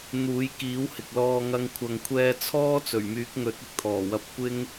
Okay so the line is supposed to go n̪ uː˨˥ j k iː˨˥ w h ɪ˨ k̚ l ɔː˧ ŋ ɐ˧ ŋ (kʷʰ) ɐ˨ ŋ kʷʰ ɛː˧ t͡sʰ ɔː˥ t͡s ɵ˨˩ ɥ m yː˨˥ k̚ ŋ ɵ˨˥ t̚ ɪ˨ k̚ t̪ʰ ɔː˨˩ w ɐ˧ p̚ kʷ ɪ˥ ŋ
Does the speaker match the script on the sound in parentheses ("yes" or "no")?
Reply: yes